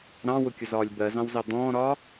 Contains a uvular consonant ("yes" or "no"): no